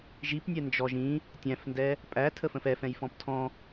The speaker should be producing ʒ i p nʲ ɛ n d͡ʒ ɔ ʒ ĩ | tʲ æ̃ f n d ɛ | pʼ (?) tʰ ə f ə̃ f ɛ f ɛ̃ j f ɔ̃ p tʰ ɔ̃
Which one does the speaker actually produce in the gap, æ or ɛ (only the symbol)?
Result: æ